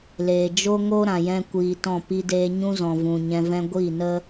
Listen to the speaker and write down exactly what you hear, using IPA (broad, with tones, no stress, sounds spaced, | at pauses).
l eː˨ d͡ʒ o˦ ŋ o˦ ɾ ã˨ j ɛ̃˦ kʷ iː˧ t ɔ̃˦˨ p i˧ d eː˧ ɲ ũ˦ z ɔ̃˨ v ũ˨ ɲ ɛ̃˧ v ɛ̃˦ ɡʷ i˦˨ n ə˦